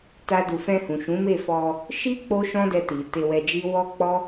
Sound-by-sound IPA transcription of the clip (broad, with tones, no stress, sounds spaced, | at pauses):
t a˦ d u˧ f ɛ̃˧ h ũ˨ ʃ ũ˨˦ m e˦˨ f ɔ˧ | ʃ i˦ k͡p o˦ ʃ ɔ̃˦ d ɛ˧ t i˨ t e˧ w ɛ˧ d͡ʒ i˦ w ɔ˦ k͡p ɔ˦